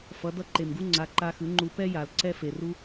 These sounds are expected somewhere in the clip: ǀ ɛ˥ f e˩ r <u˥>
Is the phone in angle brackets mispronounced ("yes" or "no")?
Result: no